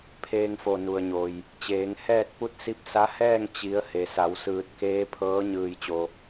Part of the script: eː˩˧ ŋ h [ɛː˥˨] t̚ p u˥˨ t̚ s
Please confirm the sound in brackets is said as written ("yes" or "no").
yes